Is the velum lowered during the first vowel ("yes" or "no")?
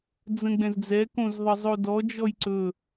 yes